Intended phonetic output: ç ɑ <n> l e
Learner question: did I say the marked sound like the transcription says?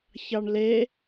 no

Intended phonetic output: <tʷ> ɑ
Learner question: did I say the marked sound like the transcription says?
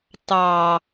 no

